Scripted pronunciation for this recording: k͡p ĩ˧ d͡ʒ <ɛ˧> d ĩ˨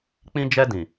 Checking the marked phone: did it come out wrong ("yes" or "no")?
no